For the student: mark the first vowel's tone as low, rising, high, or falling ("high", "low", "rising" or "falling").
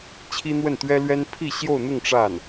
high